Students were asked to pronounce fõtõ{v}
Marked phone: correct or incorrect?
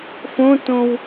incorrect